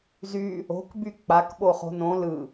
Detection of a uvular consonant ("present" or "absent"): present